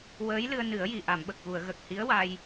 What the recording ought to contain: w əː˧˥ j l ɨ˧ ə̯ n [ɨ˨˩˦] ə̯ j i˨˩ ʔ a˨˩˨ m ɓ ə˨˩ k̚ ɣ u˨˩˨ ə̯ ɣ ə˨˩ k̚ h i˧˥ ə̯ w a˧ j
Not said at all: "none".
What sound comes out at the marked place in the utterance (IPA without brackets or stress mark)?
ɨ˨˩˦